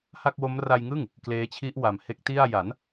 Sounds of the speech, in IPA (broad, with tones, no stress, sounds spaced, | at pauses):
h a˥˩ k̚ w o˦˥ m r a˧ j ŋ ɯ˥˩ ŋ | k l eː˦˥ t͡ɕʰ i˦˥ ʔ w a˨˩ m h e˦˥ k̚ t i˥˩ a̯ j a˩˦ n